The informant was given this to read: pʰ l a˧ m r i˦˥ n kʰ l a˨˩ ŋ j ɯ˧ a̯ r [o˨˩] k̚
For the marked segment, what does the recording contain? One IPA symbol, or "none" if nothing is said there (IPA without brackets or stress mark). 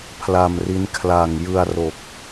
o˨˩